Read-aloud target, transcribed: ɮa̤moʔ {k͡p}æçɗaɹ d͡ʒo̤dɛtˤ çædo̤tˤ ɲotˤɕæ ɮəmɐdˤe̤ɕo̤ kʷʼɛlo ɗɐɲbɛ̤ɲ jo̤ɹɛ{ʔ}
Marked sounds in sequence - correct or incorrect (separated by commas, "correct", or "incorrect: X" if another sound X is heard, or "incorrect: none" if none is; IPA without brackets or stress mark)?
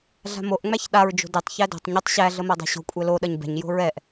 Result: incorrect: ŋ͡m, correct